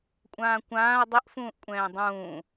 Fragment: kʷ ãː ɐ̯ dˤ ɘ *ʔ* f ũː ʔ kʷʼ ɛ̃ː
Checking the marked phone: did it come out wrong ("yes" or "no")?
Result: no